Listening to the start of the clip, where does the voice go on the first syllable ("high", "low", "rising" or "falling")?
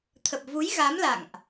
low